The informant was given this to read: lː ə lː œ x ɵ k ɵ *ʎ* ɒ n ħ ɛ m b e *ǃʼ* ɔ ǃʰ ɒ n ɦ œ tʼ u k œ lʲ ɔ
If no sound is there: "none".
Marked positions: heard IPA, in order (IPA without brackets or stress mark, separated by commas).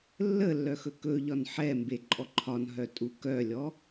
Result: ʎ, ǃʼ